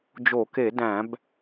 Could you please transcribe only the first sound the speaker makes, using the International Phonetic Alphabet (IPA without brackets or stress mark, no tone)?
d͡ʒ